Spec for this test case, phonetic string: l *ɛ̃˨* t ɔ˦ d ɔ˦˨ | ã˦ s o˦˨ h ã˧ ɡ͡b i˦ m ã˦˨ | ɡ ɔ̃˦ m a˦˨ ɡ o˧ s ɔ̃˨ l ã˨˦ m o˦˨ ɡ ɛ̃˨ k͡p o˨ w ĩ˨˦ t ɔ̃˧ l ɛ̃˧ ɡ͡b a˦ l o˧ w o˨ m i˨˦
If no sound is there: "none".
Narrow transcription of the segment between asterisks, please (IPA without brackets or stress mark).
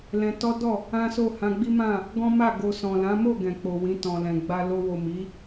ɛ̃˧